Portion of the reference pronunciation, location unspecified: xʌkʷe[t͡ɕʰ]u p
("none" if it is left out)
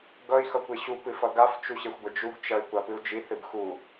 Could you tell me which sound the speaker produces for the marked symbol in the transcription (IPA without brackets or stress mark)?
ɕ